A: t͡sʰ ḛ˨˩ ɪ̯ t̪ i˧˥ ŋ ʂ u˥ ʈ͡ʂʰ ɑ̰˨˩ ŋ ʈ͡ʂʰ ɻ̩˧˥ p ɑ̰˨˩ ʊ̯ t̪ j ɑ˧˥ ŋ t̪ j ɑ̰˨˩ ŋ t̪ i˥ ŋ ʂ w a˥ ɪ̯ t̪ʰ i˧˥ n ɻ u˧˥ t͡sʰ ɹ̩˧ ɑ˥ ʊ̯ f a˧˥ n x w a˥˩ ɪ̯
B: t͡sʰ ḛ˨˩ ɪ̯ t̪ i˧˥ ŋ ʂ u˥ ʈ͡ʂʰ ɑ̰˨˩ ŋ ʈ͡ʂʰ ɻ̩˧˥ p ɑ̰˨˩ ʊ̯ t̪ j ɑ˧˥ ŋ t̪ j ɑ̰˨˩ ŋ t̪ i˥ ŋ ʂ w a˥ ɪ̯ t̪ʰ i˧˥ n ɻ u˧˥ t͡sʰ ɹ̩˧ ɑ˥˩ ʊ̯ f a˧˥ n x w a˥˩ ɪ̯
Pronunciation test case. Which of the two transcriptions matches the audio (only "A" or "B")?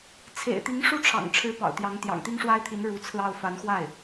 B